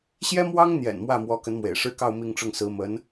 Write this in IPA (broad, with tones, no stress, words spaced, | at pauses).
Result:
ɕjɛ˥mwɑ˥ŋn̪jɛ̰˨˩n mwä˥˩mwɔ˧˥kə˧˥nmwḛ˨˩ɪ̯ ʂɻ̩˥˧kɑ˥˧ʊ̯ mi˥˧ŋʈ͡ʂʊ˥˩ŋsɹ̩˧˥ mə˧˥n